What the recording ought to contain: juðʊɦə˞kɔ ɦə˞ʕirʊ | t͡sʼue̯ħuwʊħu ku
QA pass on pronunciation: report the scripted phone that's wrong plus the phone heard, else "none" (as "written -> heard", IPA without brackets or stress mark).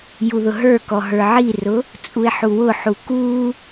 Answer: none